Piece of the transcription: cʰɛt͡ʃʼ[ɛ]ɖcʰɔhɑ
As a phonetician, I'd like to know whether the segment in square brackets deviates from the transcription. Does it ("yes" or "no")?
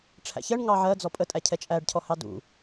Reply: yes